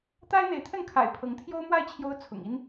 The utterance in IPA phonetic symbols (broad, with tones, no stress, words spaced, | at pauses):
t̪a˥ɪ̯n̪e˧˥ɪ̯t̪ʰə˥˩nkʰa̰˨˩ɪ̯ pʰɤ˧˥ŋt̪ʰjo˥ʊ̯mwa˥˩ɪ̯ t͡ɕʰjo˥ʊ̯t͡sʰʊ̰˨˩ŋi˥n